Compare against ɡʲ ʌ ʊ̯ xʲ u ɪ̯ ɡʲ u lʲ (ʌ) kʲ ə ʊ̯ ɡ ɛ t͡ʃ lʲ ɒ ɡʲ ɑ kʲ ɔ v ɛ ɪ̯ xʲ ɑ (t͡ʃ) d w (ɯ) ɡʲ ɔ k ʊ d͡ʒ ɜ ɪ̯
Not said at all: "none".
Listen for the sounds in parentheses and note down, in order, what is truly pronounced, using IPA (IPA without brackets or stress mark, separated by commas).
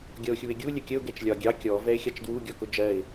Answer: ə, t͡ʃ, u